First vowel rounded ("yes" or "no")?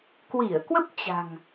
no